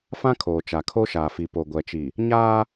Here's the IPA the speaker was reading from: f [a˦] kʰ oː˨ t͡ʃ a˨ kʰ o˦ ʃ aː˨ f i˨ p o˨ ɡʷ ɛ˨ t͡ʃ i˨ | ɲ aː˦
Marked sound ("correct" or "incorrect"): incorrect